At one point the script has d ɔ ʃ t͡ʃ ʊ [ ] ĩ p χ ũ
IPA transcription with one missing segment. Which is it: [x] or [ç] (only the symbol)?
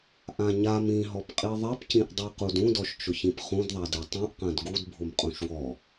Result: ç